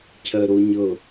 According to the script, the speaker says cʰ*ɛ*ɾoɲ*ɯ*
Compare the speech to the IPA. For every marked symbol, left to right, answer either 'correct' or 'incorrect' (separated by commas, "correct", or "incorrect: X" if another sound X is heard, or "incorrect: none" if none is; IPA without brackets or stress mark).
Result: incorrect: ɜ, incorrect: ɤ